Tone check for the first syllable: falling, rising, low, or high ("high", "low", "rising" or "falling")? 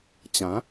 rising